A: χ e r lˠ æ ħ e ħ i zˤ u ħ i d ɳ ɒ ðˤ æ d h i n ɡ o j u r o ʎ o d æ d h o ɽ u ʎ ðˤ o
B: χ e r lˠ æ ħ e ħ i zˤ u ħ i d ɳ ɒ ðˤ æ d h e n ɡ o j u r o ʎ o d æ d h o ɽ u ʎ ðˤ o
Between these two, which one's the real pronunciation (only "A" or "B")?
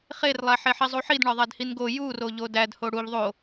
A